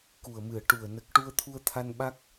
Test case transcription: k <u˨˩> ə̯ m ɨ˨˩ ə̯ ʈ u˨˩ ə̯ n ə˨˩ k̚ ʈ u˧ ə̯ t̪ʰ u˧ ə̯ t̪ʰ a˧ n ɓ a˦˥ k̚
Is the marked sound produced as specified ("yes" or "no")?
yes